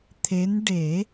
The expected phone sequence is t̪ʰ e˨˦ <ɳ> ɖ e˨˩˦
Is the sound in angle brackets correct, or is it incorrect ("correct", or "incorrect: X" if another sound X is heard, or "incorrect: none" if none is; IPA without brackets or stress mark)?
incorrect: n